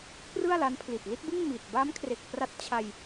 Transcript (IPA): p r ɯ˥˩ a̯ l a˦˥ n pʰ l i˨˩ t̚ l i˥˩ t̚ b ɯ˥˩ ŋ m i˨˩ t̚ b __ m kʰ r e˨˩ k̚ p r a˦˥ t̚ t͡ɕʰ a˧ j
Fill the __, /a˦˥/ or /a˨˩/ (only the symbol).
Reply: a˦˥